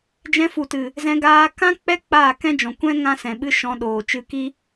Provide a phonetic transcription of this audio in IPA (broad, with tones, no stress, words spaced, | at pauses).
d͡ʒɛ̃˧fu˨tɨ˨ | zɛ̃˧ɡaː˧ kã˦ k͡pɛ˦ k͡paː˦˨kɛ̃˦d͡ʒɔ̃˨ kʷɛ̃˦ ŋã˦sɛ̃˨ɓɨ˦ ʃɔ̃˧ɗoː˨ t͡ʃɨ˧ki˦